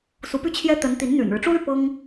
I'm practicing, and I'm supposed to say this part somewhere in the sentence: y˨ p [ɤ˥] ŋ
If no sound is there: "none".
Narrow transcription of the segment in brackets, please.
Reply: ɤ˥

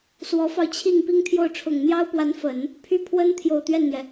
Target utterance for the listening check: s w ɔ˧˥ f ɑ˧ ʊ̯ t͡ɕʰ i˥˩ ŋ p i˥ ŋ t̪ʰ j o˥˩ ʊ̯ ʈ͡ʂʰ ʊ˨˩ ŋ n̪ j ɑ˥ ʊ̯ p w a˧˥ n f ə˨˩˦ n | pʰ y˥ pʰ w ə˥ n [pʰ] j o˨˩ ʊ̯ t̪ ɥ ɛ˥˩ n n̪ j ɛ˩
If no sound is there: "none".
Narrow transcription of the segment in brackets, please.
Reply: t̪ʰ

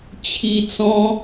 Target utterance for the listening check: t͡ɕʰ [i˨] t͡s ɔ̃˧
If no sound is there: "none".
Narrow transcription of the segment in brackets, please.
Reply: i˨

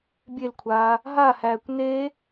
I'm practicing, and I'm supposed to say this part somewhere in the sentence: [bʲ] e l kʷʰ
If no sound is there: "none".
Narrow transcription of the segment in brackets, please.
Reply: bʲ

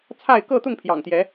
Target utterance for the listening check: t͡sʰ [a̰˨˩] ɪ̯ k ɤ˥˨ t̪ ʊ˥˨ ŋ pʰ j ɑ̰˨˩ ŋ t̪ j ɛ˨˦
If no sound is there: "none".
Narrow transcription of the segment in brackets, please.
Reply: a˥˨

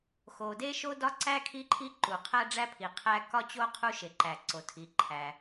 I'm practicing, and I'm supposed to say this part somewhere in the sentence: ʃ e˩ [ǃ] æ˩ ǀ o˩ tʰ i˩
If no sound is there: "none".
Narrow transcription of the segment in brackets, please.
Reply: ǃ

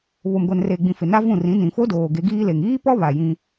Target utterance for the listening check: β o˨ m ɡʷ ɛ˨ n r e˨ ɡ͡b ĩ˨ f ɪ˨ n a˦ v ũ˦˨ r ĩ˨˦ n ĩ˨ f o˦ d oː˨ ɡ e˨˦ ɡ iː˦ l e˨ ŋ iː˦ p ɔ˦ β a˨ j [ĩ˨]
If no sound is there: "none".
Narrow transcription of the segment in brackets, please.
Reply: ĩ˦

